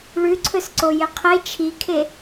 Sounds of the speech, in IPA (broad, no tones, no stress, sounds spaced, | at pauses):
ɭ ʉ ǀʰ ɵ s ǀ o j e qʰ e t͡ʃʰ i kʰ e